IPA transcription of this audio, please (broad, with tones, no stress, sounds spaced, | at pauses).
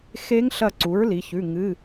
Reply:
x e˧˥ ŋ ɬ ɐ˧˩ ǀ u˩˥ ɹ l i˩˧ ç ʉ˩˧˩ ŋ ɨ˩˧˩